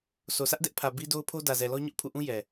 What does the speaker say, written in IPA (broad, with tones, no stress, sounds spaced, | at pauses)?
sʰ o˨ sʰ ä˦ ʔ d ɛ˦ ʔ pʰ ä˨ b i˦ d o˦ ʊ̯ pʰ o˦ d ä˨ z ɛ˨ l ɔ˦ ɲ ʊ˦ ʔ pʰ ṵ˦˨ ʔ ũ˦ j ɛ˨